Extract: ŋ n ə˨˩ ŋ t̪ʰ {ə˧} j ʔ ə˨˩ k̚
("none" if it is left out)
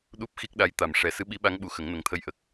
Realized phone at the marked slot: ə˧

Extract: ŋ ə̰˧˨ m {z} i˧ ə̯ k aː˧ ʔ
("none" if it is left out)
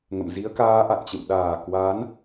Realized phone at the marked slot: z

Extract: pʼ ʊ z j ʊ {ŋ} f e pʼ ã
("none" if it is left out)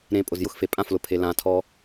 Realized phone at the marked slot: x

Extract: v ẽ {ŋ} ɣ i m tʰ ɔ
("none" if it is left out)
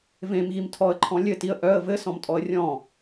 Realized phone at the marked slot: m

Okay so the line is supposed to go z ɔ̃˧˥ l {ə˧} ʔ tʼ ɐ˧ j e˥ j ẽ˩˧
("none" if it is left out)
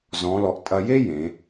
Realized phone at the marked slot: ɔ˧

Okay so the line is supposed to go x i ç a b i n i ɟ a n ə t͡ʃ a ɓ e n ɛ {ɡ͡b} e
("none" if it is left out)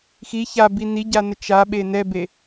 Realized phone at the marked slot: b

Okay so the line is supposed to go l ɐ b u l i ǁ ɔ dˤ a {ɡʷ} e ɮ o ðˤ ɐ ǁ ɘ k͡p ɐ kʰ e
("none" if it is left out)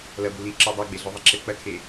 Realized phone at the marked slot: ɡ͡b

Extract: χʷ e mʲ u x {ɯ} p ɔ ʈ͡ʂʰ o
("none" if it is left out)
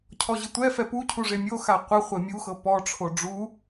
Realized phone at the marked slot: ɤ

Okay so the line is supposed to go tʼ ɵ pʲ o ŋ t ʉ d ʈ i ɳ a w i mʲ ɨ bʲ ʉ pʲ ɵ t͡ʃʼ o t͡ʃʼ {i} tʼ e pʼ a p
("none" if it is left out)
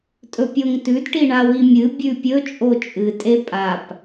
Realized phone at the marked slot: ɨ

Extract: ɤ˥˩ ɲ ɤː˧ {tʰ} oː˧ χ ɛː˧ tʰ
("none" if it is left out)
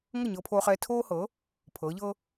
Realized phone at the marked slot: pʰ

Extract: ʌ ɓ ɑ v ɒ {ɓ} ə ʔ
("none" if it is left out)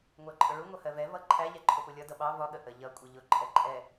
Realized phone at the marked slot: ɠ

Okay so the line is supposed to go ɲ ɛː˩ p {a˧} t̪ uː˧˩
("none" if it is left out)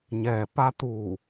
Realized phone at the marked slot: a˧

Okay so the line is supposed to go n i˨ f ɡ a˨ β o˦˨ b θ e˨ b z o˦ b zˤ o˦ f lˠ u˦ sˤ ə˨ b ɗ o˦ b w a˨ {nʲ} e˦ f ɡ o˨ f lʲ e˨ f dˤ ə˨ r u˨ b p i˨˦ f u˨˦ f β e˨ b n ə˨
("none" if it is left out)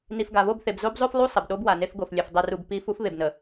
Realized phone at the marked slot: n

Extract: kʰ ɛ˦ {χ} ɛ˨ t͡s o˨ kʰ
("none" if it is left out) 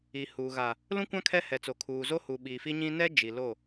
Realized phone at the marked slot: h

